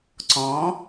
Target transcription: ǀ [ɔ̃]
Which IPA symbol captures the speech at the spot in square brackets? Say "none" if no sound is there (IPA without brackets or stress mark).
ɔ̃